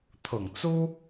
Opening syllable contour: low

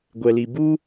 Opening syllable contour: low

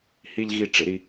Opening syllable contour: low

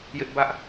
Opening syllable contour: high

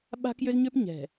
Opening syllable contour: high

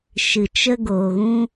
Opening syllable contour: low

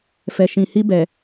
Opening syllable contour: low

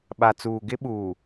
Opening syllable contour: low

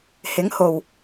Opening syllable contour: rising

